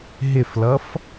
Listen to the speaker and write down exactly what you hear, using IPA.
ɦ ɪ f l ʌ f

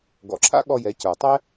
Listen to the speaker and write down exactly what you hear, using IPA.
ɡ ɔ̰˩ ǁʰ a̰˥ ɠ ɔ˧ j ɛ˩˧ c ə˞˩ tˤ ɛ˥

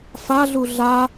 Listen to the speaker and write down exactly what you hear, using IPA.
f a ɮ u ɮ a

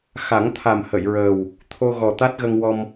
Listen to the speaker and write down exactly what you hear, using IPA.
x a˨˩˦ ŋ t̪ʰ a˨˩ m h ə˨˩˨ j ɹ əː˨˩ w | t̪ʰ o˧ ɣ ɔ˨˩ t̪ a˦˥ t̚ ɣ ə˧ ŋ w ɔ˧ m

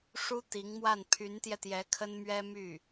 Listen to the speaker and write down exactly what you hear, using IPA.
ʂ u˥ t̪ i˧˥ ŋ m w a˥˩ n pʰ y˧˥ n t̪ j ɛ˧ t̪ j ɛ˧˥ kʰ ə˥ n m ɥ ɛ˥ m y˥˩

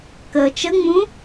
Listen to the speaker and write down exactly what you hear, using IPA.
k əː t͡ʃ ə ŋ͡m ũ

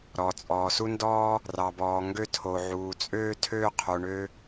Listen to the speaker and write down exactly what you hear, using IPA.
ɾ ɔ˩ t͡sʼ ɔː˩ s u˧ n d ɔː˧ | r ɑ˩ b ɔː˩ ŋ ɡ ø˧ tʰ o˩ ʕ uː˩ t͡sʼ øː˧ tʰ øː˧ qʰ o˩ ɳ ø˧

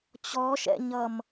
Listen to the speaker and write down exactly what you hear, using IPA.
t͡ɕ ɔ ʃ ɛ̰ ɲ ʌ m

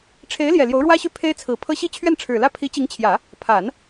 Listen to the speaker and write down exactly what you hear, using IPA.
ʈ͡ʂʰ e˧˥ ɪ̯ l j ɛ˨˩ l j o˧˥ ʊ̯ ɻ w ä˥ ɕ y˥˩ pʰ e˥ ɪ̯ t͡sʰ ɹ̩˨˩ pʰ ɤ˥ ɕ i˥˧ t͡ɕʰ ɥ ɛ˥˩ n ʈ͡ʂʰ ɻ̩˨˩ l ä˥˩ pʰ i˧˥ t͡ɕ i˧˥ ŋ t͡ɕʰ j ä˨˩˦ | pʰ a˨˩˦ n

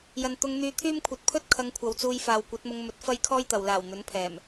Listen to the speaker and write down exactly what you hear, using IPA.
j ɐ˨ n t̪ ʊ˧ ŋ n̪ yː˧ t̪ʰ yː˥ m kʷʰ ɐ˨ t̚ pʰ ɵ˥ t̚ kʰ ɐ˧ ŋ kʷʰ ɐ˨˧ w t͡s uː˧ j f aː˨ w kʷ ɐ˨˥ t̚ m ʊ˧ ŋ m ɵ˧ t̚ f ɐ˥ j kʰ ɔː˥ j t̪ ɐ˨ w l aː˨˩ w n̪ ɵ˨˥ n pʰ ɛː˨˩ m

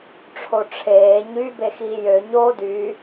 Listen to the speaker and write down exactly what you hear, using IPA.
ʈ͡ʂʰ o ʈ͡ʂʰ eː ɲ y b e x iː j ø ɲ oː d y

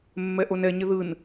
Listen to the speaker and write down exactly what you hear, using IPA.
mː ɛ ʔ o n ɛ ɲ ɪ ð ɯ n

